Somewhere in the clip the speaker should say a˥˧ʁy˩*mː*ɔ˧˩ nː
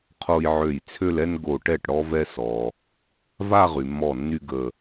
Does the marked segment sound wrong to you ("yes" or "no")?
no